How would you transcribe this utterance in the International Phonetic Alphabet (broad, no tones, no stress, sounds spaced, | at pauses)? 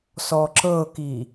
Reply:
s ɔ ǁ ɤ k i